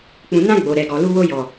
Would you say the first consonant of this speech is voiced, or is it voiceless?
voiceless